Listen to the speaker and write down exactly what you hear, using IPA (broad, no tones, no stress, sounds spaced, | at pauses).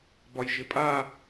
b ɒ j ʒ ɪ pʼ a